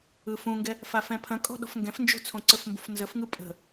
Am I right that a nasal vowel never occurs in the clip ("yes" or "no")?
no